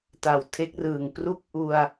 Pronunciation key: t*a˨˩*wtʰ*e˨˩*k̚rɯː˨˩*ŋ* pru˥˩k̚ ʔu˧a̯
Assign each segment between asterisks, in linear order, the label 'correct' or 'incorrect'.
correct, incorrect: e˦˥, correct

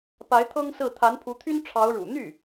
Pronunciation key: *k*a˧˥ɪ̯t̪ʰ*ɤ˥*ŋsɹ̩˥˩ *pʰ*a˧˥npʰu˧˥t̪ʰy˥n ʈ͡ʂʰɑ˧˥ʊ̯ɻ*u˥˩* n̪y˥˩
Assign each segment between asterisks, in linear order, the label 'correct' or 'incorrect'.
incorrect: p, correct, incorrect: t̪ʰ, incorrect: ṵ˨˩

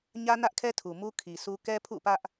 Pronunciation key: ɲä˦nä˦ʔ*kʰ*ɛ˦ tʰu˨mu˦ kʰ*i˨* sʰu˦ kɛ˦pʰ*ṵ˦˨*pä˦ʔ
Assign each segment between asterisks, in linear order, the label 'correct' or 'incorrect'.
correct, correct, correct

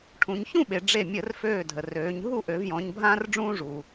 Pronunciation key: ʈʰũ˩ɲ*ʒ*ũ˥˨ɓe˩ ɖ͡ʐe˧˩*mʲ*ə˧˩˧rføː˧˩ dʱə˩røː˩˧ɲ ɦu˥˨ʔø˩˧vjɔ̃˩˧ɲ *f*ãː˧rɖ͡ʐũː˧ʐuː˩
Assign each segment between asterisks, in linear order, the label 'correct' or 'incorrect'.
incorrect: ç, correct, incorrect: bʱ

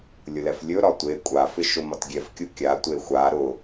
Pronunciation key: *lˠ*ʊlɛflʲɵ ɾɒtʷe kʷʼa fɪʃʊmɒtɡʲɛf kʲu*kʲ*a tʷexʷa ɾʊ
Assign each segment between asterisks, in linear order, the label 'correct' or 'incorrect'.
incorrect: lʲ, correct

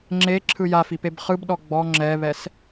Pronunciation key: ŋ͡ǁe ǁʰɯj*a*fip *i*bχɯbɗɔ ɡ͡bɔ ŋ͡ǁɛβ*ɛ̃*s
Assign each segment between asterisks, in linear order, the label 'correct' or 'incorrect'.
correct, incorrect: e, incorrect: ɛ

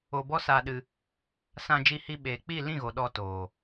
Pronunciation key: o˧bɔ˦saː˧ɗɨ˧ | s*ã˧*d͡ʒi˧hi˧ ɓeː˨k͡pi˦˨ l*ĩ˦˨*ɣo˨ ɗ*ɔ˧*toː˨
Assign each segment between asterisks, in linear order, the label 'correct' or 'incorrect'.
correct, correct, correct

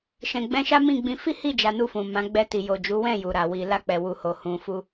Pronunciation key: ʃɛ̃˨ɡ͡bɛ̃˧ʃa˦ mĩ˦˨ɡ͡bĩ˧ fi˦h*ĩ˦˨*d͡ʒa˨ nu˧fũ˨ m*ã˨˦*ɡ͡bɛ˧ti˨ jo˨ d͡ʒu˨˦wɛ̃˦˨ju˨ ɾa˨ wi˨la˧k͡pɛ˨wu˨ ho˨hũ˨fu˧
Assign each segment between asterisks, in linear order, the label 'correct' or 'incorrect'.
incorrect: i˦˨, correct

